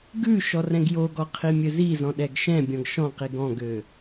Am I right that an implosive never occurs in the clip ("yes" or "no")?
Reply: no